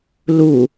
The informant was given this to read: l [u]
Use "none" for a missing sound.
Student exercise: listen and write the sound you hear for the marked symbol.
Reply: u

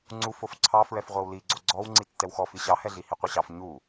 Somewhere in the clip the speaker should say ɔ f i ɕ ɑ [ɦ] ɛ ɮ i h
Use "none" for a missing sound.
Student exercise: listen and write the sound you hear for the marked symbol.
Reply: h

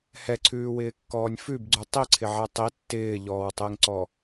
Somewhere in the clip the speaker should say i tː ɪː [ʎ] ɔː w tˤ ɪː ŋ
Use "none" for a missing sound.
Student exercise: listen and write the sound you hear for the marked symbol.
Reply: ʎ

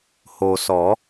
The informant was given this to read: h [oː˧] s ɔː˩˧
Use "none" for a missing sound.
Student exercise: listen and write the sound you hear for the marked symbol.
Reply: oː˩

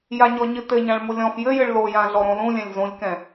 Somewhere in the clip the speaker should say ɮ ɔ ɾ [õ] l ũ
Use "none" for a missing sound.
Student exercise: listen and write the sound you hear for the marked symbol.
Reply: õ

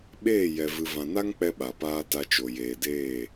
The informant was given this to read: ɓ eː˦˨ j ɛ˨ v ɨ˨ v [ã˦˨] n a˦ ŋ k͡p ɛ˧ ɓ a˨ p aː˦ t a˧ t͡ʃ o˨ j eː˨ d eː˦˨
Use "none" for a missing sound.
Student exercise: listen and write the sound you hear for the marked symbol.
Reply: ã˨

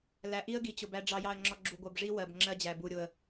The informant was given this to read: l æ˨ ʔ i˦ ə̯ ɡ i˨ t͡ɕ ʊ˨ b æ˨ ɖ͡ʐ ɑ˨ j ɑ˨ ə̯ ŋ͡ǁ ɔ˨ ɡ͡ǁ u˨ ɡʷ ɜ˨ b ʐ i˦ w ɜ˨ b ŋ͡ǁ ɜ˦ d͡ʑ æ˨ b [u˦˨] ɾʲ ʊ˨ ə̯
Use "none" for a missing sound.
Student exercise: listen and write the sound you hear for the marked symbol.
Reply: u˨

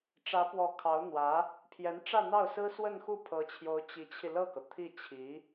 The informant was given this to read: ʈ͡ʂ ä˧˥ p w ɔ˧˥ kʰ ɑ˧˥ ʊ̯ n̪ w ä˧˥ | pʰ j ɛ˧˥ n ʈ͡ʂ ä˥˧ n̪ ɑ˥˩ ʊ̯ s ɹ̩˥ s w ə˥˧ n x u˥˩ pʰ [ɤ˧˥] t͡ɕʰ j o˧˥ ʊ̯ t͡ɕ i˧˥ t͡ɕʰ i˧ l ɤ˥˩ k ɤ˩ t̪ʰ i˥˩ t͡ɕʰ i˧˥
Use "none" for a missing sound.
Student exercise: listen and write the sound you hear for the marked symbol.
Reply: ɤ˧˥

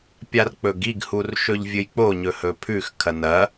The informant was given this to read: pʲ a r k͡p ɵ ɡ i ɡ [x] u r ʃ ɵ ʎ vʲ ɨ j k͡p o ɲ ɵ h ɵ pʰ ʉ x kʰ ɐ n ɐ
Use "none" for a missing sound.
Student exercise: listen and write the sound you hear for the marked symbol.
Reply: h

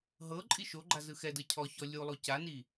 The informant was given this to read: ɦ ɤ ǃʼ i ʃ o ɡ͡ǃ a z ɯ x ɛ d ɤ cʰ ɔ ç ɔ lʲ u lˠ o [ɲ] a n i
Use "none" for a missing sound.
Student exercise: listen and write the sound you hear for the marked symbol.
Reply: c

